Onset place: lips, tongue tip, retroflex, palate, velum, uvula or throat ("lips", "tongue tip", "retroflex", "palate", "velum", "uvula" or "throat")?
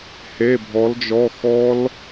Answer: throat